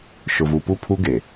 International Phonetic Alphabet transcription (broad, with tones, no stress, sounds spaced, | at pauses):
ʃ ʊ˨ v u˨ p u˦˨ pʰ u˦ ɡ e˨